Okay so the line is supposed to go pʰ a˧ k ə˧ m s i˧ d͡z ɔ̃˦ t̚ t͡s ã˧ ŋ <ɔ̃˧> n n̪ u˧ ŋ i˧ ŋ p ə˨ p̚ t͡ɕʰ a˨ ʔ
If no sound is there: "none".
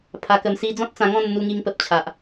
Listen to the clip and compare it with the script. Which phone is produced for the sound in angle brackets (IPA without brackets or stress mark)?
ɔ̃˥˧